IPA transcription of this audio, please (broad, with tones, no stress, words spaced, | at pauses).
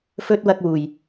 fɵ˧t̚ wɐ˧k̚wuː˨j